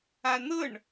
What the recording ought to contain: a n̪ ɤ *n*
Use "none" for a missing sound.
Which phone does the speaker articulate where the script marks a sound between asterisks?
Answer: ɳ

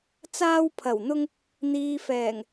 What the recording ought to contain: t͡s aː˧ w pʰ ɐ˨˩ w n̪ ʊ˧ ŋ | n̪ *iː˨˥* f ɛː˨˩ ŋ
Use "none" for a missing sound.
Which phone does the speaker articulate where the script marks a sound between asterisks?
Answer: iː˨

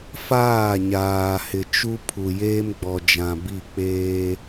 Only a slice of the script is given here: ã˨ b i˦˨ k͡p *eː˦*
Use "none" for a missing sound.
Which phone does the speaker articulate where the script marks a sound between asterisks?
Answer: eː˦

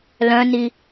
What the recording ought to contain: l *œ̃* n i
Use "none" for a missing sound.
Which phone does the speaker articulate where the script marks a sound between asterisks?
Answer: œ̃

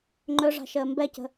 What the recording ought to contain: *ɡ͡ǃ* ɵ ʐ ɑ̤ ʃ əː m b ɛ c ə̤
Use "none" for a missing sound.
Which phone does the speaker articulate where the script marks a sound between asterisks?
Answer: ŋ͡ǃ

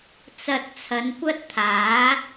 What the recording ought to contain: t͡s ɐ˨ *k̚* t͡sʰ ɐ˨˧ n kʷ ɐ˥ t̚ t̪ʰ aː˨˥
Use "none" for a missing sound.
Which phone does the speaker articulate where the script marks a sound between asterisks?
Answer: t̚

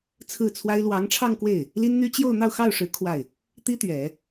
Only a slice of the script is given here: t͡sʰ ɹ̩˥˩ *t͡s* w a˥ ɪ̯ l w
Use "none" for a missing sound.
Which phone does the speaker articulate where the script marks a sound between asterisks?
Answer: t͡sʰ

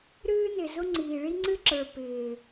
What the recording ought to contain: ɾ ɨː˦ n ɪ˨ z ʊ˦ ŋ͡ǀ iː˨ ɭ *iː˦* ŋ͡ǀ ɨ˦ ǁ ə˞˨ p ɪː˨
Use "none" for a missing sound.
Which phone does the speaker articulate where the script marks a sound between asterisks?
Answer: i˦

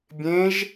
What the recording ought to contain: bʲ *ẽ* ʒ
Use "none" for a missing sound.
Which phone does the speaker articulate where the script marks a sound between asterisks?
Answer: ẽ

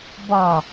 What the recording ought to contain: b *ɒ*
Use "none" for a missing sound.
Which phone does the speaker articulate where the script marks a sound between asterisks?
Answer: ɒ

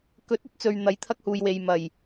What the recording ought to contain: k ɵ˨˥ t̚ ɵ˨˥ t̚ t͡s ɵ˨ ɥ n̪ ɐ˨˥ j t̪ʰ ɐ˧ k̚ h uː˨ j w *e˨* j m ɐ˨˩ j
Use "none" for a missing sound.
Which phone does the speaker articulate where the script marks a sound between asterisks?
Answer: e˨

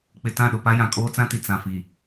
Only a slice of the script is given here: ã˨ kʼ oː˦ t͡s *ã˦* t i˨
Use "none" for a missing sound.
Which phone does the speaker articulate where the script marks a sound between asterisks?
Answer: ã˦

